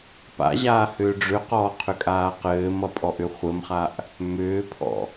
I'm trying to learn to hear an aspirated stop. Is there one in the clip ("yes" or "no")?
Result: yes